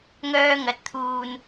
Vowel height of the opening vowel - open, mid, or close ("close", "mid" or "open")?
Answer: mid